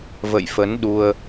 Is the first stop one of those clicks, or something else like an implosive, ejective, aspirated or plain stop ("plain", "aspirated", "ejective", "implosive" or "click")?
implosive